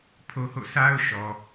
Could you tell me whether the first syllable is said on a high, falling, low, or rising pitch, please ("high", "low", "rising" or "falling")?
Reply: high